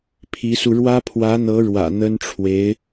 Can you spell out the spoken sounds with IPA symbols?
pʰ i˧˥ s u˧ ɻ w ä˥ pʰ w ä˧˥ n̪ ɤ˧˥ ɻ w ä̰˨˩ n̪ ə˥ n ʈ͡ʂʰ w e˧˥ ɪ̯

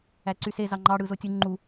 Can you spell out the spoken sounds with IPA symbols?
æ ǀ y s e z ɑ ŋ͡ǃ ɑ ɽ ɯ z o tʲ u ŋ͡ǃ u

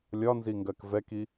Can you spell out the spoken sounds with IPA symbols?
lʲ ɒ n z i ŋ ɡ ɜ k v ɛ k i

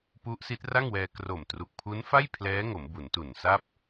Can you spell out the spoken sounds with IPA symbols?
p u˦˥ ʔ s i˦˥ t̚ r a˥˩ ŋ w ɛː˧ k r o˨˩ m t r u˨˩ k̚ pʰ u˦˥ n f a˥˩ j pʰ l ɛː˦˥ ŋ o˩˦ m b u˩˦ n t u˨˩ n s a˥˩ p̚

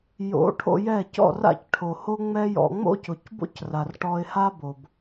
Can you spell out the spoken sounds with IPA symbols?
j o̰˨˦ ʈʰ o̰˧ j ɛ˦˨ c ɔ̰˦˨ r a̰˦˨ c ʈʰ o˨ h o˦ ŋ͡m ɛ˦ j ɔ̰˧ ŋ͡m o̰˦ c ʊ˨ c b o̰˦ c r a˨ r ʈ ɔ˧ ɪ̯ h a˦ b o˨ b

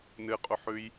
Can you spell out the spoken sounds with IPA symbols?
n ɨ qʼ u ħ ʉ j

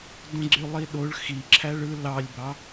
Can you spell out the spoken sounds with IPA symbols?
d õ ɡ͡ǀ y lˠ i ɗ o ɭ x i ǁʰ æ ɭ ɯ l ɑ lʲ b ɑ

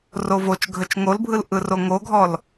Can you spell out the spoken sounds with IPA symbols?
r o v o t͡ʃ ɡʱ ə t͡ʃ ŋ o l bʱ ɯ l ʔ ɯ r o ŋ o ɡʱ ɔ l

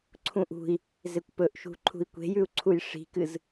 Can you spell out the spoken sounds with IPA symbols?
ǀʰ ũ ʔ ṳ i̯ | z e kʷ p ɵ ʔ ʃ ṳ ǃʰ ṳ i̯ kʷ e̤ j ʉ u̯ ǀʰ u j ʂ i̤ k ɨ z

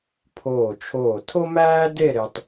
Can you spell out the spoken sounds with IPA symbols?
pʰ oː˧˩ t͡ʃʰ oː˧˩ tʰ o˥ m æː˥ d e˥˧ ɾ e˧ tˤ

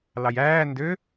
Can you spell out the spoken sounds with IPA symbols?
l ɑ j æː n d ø

